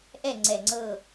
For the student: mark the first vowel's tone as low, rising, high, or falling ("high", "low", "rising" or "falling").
falling